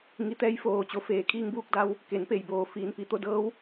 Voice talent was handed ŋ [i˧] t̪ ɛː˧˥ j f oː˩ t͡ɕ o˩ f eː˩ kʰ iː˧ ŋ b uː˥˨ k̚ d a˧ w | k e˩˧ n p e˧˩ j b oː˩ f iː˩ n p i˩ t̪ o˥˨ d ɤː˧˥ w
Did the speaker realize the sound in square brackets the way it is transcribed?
yes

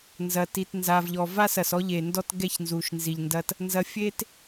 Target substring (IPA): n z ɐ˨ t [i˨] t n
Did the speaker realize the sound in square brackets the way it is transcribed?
yes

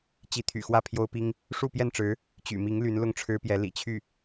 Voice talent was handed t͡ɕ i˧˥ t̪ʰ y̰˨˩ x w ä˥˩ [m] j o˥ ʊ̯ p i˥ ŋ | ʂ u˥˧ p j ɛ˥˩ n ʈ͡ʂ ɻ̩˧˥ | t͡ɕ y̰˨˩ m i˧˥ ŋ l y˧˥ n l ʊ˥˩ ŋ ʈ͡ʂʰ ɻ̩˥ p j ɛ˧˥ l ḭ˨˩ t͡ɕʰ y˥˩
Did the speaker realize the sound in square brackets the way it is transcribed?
no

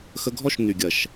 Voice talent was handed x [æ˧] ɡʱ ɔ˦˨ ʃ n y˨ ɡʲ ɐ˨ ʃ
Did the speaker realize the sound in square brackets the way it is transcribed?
no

